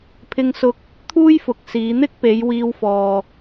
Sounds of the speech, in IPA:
pʰ ɪ˧ ŋ s ʊ˧ k̚ | t̪ʰ uː˥ j f ʊ˨ k̚ s iː˨˧ n̪ ɪ˥ k̚ p e˨˧ j w iː˧ w f ɔː˨

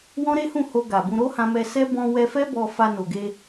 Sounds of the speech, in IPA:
w ɔ̃˦ ɾ e˦ h ũ˦˨ h o˧ ɡ a˨ b ũ˧ ɾ o˦ h ã˧ m ɛ˧ s ɛ˦ b ɔ̃˧ w ɛ˧ f ɛ˦ b ɔ˧ f a˧ n o˨ ɡ e˧

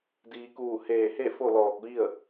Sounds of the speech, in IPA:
d iː˩ k uː˧˩ h eː˧˩ h e˥˨ f o˥˨ l ɔː˧˩ k̚ ʋ i˥˨ ə̯

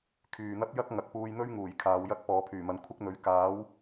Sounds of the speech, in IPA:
kʰ yː˨ n̪ ɐ˥ p̚ j ɐ˥ k̚ ŋ ɐ˨ k̚ p uː˧ j n̪ ɵ˥ ɥ ŋ uː˨˩ j kʰ aː˨˧ w j ɐ˥ k̚ p ɔː˨˧ pʰ yː˨˩ m ɐ˨˧ n kʷʰ ɪ˥ k̚ n̪ ɵ˨˥ ɥ k aː˨˥ w

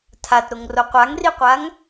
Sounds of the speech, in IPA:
tʰ a t ɾ o ŋ r o qʷ a ŋ r i qʷ a ŋ

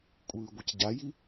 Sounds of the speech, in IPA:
kʷʼ ɯː ɡʷ ʌ c ɟ a j i

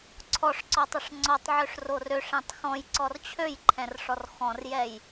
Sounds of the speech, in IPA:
ǀʰ ɔ ʂ ǀ ɔ tˤ ə ʂ ŋ͡ǀ ɔ tˤ ʕ ø ʂ r o r ø ʂ ɛ̃ tˤ x ɔ̃ j ǀ ɔ r t͡ɕʰ ø j ǃʰ ɛ̃ r ʂ ɔ r x ɔ̃ r j ɛ j

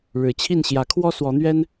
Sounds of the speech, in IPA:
ɻ ɻ̩˨˩ t͡ɕʰ i˥˨ n ɕ j ä˨˦ kʰ w ɔ˦ s w ɔ˨˦ n̪ ɥ ɛ˦ n

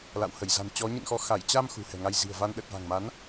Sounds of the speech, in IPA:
l a̰˧˨ w h ə˧˩ j z a̤˨˩ n t͡ɕ ɔ˨˦ ɲ ɨ̰˧˨ n x ɔ˨˦ x a˧˩ j t͡ɕ a˧ m x ṳ˨˩ h ɛ̤˨˩ ŋ a˧ j z i̤˨˩ ə̯ v a˧ n ɗ ə˨˩ t̚ v a̤˨˩ ŋ m a˨˦ n

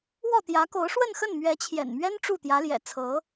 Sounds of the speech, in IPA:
w ɔ˥˩ t̪ j ä˧˥ k o˧˥ ʊ̯ ʂ w ə˥˧ n x ə˥˩ n m ɥ ɛ˧˥ t͡ɕʰ j ɛ̰˨˩ n m ɥ ɛ˥ n ʈ͡ʂ u˥˩ t̪ j ä˧˥ l j ɛ̰˨˩ t͡sʰ ɤ˧˥

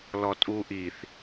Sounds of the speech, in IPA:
l ɔ tʼ u ʔ i θ

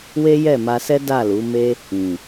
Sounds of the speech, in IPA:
w e˦ j ɛ˦˨ m a˧ s ɛ˦ d a˦˨ l u˨˦ m e˦ | ĩ˨

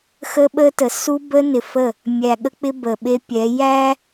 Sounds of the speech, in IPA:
x ə˦ ɓ ə˦ t ə˨ s u˦ b ə˦ n ɪ˨ f ə˦˨ | mʲ æ˨ ɠ ə˦ k͡p ɪ˦ b ə˨ ɓ e˦ pʲ ɛ˨˦ j æ˦

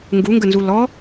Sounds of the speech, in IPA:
ŋ ɡ u ŋ ɡ ə n z u l ɔ

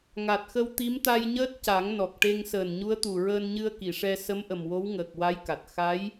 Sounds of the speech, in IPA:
ŋ a˨˩ t̚ x ə˧ w t̪ i˧˥ m t̪ a˧ j ɲ əː˦˥ t̚ c a˨˩˦ ŋ n ɔ˨˩ k̚ ʈ e˧ ŋ s əː˨˩ n ɲ u˧˥ ə̯ t̪ u˨˩ ɹ əː˧ n ɲ ɨ˧ ə̯ k i˨˩˨ ʂ ɛ˧ s ə˧˥ m ʔ ə˨˩ m w o˧˥ w ŋ əː˨˩ k̚ w a˧˥ j k a˨˩ t̚ x a˧˥ j

